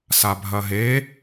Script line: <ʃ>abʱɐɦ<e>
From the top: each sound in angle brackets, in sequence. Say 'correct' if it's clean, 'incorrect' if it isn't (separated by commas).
incorrect, correct